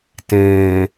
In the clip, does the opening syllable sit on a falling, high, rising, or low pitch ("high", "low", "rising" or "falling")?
low